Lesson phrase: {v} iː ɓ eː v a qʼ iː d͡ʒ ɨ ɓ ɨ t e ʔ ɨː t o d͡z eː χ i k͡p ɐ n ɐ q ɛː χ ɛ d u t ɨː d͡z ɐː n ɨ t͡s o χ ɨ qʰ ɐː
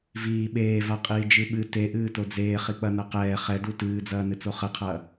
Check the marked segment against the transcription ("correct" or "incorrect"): correct